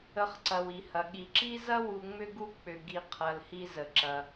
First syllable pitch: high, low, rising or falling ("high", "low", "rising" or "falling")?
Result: low